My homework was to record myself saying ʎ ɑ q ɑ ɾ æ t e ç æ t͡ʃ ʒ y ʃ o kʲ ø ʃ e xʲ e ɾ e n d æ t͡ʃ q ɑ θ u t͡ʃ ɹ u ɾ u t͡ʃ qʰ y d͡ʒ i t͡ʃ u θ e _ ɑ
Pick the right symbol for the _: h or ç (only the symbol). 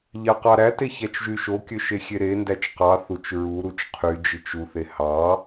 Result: h